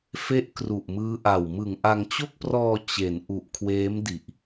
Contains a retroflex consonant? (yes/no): no